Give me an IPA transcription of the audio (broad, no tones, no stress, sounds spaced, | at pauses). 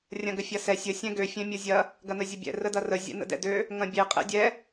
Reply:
rʲ ɐ̃ ɡ ə fʲ ɐ s ɛ sʲ ə sʲ ɛ̃ ɡ ø fʲ ɛ̃ mʲ o zʲ ɐ | ɡ ɐ n ə zʲ ə bʲ ɛ̰ r ə d ɐ r ə zʲ ɛ̰ n ə̰ d ɛ̰ d ø | ŋ ɐ̃ bʲ e qʼ ɛ̰ dʲ ɛ